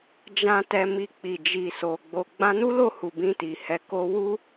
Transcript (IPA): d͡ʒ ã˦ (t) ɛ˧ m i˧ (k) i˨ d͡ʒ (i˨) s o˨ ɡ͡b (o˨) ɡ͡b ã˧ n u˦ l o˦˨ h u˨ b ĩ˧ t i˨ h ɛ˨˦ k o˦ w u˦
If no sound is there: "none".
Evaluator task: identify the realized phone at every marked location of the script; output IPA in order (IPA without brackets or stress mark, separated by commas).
t, k͡p, i˨, o˨